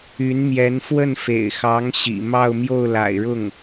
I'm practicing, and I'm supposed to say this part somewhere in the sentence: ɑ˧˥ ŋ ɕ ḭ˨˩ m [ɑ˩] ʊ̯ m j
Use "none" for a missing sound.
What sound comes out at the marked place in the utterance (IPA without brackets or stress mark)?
ɑ˥˧